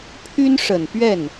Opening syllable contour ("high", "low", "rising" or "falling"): high